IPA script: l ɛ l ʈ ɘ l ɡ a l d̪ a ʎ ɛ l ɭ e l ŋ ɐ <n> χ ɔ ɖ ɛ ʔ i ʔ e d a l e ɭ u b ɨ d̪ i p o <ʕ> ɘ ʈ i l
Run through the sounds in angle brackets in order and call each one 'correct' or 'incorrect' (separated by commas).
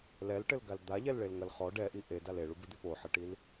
incorrect, incorrect